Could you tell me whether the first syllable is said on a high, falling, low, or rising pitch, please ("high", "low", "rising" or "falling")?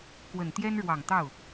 low